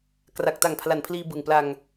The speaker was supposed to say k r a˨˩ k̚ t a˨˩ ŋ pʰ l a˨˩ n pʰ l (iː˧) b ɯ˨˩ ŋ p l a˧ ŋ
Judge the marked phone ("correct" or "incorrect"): correct